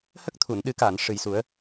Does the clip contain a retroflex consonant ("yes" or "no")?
yes